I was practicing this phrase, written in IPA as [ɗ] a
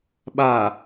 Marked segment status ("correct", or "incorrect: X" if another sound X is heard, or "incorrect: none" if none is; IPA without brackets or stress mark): incorrect: ɓ